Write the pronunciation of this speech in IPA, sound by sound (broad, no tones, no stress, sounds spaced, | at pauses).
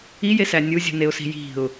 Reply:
i j e s æ nʲ u zʲ ṳ n e ʊ̯ s i̤ j i̤ ʊ̯